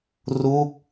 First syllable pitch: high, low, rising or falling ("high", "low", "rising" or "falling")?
falling